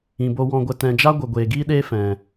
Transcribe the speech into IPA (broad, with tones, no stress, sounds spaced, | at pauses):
ĩ˨ b o˧ w ɔ̃˧ ɡʷ ə˧ t ɛ̃˨ d͡ʒ a˦ ɡʷ ə˨ ɡʷ eː˨ ɡ iː˦ ɗ eː˦ f ɛ̃˨